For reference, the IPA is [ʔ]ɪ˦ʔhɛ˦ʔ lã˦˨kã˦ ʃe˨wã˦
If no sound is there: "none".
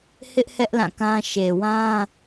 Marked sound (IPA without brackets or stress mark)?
h